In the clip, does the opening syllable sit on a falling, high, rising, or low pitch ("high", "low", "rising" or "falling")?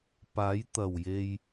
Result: rising